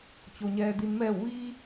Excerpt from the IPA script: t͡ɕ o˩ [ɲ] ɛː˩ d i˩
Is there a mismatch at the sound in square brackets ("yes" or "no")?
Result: no